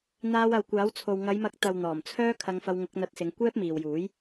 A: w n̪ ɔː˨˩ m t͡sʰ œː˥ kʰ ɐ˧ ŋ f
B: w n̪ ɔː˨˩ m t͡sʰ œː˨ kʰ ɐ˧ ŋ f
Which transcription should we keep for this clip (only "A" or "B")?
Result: A